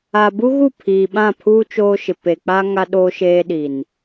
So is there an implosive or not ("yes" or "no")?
yes